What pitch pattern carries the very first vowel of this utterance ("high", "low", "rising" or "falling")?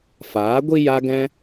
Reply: rising